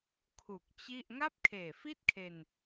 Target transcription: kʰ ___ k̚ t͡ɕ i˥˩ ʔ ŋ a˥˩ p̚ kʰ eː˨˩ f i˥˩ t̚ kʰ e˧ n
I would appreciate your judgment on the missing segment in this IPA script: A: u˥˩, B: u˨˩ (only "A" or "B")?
B